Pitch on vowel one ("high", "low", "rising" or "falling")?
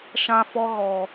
high